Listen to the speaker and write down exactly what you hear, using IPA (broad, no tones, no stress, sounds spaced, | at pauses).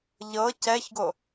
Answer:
ʎ ɤ c ɛ ç ɡ o